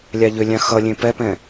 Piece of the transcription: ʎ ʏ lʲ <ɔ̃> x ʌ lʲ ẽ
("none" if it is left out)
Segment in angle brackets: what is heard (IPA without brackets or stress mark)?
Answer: ɑ̃